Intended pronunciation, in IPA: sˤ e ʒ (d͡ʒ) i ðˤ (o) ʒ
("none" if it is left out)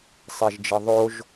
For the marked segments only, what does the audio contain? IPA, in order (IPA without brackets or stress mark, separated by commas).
d͡ʒ, o